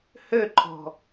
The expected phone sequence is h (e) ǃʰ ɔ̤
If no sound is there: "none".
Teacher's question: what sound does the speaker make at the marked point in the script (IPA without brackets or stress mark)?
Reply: ø